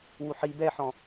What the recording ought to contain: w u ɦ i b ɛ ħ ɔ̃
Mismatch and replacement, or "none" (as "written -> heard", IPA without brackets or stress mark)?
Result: ɦ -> ħ